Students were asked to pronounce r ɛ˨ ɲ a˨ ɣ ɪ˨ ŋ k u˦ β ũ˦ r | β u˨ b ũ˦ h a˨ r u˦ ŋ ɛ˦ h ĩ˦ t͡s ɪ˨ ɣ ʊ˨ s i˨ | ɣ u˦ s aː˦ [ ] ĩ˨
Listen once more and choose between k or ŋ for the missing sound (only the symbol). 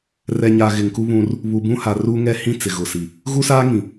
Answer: ŋ